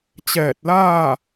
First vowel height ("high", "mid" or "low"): mid